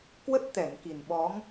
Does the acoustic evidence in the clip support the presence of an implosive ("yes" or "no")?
yes